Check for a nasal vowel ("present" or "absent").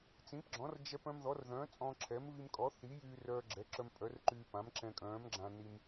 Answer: present